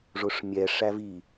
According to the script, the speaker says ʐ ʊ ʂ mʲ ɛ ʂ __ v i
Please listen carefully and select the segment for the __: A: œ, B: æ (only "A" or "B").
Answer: B